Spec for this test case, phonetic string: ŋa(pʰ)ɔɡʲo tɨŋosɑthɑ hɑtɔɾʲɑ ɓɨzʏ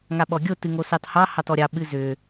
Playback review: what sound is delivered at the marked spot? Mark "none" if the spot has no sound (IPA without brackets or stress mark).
ɓ